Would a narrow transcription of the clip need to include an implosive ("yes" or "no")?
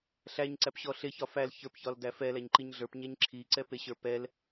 no